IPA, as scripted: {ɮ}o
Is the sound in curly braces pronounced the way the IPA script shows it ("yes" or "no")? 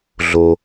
yes